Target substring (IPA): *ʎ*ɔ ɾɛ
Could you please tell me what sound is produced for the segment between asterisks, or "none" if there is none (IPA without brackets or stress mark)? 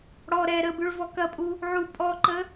ɽ